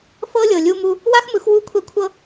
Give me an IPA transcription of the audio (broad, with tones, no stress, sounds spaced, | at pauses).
f ɤ˦ lʲ ɤ˨ lʲ u˧ m u˧ | w a˦ x m ɯ˨˦ x w u˦˨ kʷʰ ɛ˧ kʷʰ ɤ˧